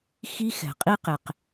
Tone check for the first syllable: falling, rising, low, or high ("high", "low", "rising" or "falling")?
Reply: high